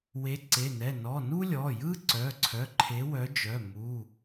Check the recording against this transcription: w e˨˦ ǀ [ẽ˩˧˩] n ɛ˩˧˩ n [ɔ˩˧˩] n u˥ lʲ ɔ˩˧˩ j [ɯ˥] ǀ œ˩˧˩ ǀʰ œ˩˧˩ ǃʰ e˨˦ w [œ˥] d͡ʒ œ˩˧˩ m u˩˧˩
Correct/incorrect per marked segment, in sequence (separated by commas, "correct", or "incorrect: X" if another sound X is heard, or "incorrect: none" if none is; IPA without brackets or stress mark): incorrect: e˩˧˩, correct, correct, incorrect: œ˨˦